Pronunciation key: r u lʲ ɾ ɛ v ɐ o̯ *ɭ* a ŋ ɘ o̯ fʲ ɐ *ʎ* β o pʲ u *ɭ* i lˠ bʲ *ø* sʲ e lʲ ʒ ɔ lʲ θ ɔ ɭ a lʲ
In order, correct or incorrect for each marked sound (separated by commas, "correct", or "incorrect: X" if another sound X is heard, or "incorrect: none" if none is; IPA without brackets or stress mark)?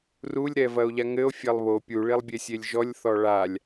incorrect: ʎ, incorrect: lˠ, correct, incorrect: e